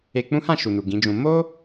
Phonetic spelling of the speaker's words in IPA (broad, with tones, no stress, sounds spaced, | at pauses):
e˧ k͡p ũ˦ h ã˦˨ ʃ u˨ n u˨ ɡ ĩ˨˦ d͡ʒ ũ˧ m o˦